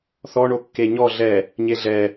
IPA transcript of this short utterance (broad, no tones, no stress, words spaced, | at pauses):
θɔɳo kːeɲɔ ɮɛ | ɲeɮɛ